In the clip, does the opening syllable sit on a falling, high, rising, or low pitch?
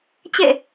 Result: falling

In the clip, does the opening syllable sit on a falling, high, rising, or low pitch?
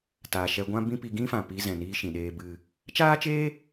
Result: low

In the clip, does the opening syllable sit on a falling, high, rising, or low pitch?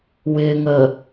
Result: low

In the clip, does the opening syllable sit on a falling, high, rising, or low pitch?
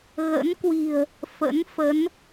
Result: rising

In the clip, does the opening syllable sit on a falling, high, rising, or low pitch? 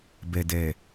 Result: low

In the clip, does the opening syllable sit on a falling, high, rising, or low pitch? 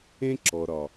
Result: high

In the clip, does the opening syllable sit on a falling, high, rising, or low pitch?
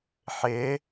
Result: rising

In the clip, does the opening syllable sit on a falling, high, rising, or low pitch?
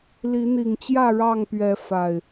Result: rising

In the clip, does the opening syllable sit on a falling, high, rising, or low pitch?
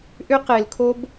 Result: high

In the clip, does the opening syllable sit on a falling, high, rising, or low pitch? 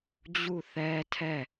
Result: falling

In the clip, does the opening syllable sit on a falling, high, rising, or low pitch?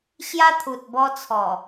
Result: high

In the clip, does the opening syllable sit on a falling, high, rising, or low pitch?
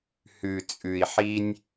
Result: low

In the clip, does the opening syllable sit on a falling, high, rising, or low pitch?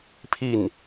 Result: falling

